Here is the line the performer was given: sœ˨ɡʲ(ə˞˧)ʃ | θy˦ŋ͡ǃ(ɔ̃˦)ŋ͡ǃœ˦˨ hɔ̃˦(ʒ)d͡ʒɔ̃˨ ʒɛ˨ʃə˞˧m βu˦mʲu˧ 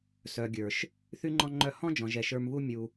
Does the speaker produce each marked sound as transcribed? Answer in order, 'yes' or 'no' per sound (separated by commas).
no, yes, no